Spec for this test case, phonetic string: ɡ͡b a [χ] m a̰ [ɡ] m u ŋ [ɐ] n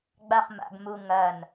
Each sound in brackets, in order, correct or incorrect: correct, correct, correct

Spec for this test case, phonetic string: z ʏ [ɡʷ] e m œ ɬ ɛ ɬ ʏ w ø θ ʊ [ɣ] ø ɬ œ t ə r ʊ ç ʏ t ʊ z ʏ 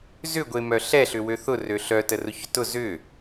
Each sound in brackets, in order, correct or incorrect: correct, incorrect

